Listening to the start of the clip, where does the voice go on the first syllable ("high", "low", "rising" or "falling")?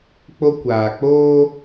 high